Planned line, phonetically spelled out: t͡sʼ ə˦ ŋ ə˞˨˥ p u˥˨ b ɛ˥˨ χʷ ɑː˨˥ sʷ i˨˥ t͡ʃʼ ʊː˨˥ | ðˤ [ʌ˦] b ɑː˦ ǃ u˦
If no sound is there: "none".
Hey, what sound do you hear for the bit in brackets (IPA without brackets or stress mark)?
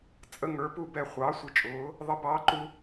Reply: ʌ˦